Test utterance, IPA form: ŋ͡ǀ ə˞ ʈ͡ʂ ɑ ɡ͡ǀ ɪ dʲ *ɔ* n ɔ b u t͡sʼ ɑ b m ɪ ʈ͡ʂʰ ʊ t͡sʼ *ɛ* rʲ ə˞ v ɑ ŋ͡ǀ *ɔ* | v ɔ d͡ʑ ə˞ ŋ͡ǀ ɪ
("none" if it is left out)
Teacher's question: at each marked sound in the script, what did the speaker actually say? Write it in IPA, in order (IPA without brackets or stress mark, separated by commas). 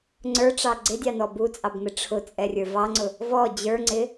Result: ɑ, ɛ, ʊ